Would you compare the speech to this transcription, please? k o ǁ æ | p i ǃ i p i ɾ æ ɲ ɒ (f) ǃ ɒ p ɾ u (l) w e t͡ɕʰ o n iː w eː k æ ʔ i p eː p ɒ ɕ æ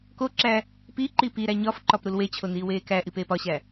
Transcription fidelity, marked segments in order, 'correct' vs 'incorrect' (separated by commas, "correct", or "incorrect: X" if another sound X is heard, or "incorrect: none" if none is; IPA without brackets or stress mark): correct, correct